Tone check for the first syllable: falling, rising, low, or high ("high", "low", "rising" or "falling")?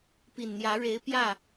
low